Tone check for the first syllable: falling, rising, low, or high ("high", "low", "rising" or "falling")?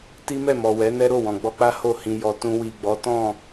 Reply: high